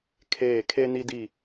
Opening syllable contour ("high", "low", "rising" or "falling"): falling